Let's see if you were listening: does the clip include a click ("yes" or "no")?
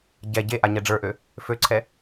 yes